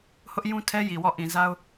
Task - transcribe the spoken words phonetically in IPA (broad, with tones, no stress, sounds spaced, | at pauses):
h ʊ˦ ʔ j ũ˦ tʰ ɛ˦ j i˨ w ɔ˦˨ ʔ ĩ˨ z a˦ ʊ̯